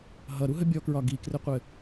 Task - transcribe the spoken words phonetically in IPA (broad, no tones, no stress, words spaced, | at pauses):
ɦʌɾuɦə bʲɔkɹɒ ɡikrɘqʷɘ